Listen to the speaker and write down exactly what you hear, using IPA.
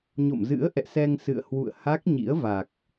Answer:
ɲ o̰˧˨ m z ɨ̰˧˥ ə̯ ʔ ɛ̰˧˨ s ɛ˧ ŋ s ɨ̰˧˨ ə̯ h w ṵ˧˨ ə̯ h a˦˥ k̚ ɲ ḭ˧˥ ə̯ v a˨˩ k̚

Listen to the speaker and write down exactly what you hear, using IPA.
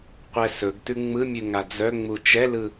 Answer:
qʷ ɛ s ɵ ɡ t ʉ ŋ͡m ɯ mʲ ʉ ŋ a d͡z œ ŋ͡m u t͡ʃ ɛ l ɯ

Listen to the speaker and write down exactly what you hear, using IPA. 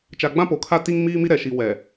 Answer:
t͡ʃ a˨ ɡ͡b ã˦ p o˨ kʰ a˦ t i˦ ŋ m iː˦ m i˦ ɾ ɛ˨ ʃ i˨ w ɛ˨

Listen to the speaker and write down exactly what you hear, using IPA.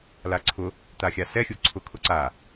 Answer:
l a ǀʰ ʊ | t̪ a xʲ a s ɛ xʲ u ǀʰ ʊ kʰ ʊ ǀ a

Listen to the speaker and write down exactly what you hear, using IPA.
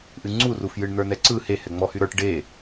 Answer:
ʔ ɨ ŋ͡ǀ u r u f j ɨ ɳ n̪ ə˞ n ɛ ǀ ɯ h e h ɛ ŋ͡m ɔ h y ɾ ə˞ ʈ ɖ e

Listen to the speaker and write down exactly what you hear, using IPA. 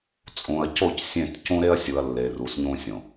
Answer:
t͡sʼ ũ˨ ɐ̯ c o˦˨ c sʲ ẽ˦˨ t c ũ˦ ɾ e˦ ɐ̯ sʲ u˨ ɐ̯ lː e˨ r u˨ s ɲ ũ˦ sʲ õ˨

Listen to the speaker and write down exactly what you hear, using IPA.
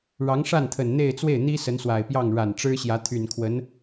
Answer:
ɻ ɑ˧˥ ŋ ʂ a˥˩ n t̪ʰ ə˨˩ n n̪ e˥˧ ɪ̯ t͡s w e˥˩ ɪ̯ n̪ i˥ s ə˧˥ n s w a˨˩ ɪ̯ p j ɑ˥˩ ŋ ɻ a˨˩ n ʈ͡ʂ ɻ̩˥ ɕ j ä˧˥ t̪ʰ y˨˩ n kʰ w ə˧˥ n

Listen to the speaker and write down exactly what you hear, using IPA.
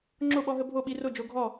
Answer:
ŋ͡ǁ o˥˨ ɓ ɔ˦ ɦ ə˦ bʱ o˥˨ ɓ i˦ r o˥˨ d͡ʒ o˦ ɡʱ ɔ˥˨

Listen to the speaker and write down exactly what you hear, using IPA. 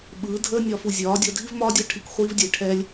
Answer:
ɓ ɯː˨˦ dʱ əː˦ nʲ ɒː˧ f u˨ zʲ ɒː˨˦ dʲ ɒ˧ dʱ i˦ v m ɒː˦ dʲ a˦ ʈʰ i˧ k χʷ iː˧ v dʲ e˨ ʈʰ ɛ˦ lʲ

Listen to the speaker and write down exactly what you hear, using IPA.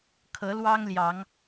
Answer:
kʰ ɤ˨˦ l w ɑ˦ ŋ l j ɑ˨˦ ŋ

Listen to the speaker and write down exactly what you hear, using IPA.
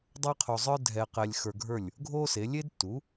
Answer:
dˤ ɛ˥ qʰ o˧ zˤ ə˞˥ dʱ ɛ˧ q ɛ˧ lʲ x ə˞˧ ɡʱ ə˞˥˩ lʲ | ɡʱ o˥ s e˩˥ lʲ e˥ d t u˩˥

